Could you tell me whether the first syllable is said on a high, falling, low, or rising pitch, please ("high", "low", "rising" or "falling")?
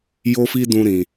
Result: high